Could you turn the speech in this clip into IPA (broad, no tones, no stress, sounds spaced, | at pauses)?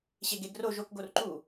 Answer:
ɕ e ɡ e ɡ r o ʒ o k ɡ o r ǃ u